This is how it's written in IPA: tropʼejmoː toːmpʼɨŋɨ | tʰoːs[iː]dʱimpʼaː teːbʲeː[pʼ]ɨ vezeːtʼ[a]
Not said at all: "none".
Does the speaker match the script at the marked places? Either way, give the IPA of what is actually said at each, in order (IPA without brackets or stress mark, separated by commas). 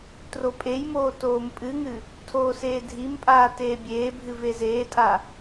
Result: eː, bʱ, a